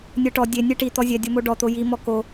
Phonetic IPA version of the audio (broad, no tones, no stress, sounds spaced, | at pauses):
nʲ ɤ ʈ ɔ dʲ e nʲ e ʈ i t̪ ɔ zʲ ɛ dʲ o m o ɖ ɔ t̪ o j i m ɔ k o